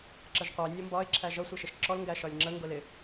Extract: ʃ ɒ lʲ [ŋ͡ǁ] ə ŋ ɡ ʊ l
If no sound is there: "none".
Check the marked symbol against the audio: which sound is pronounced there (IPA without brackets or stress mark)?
ŋ͡ǁ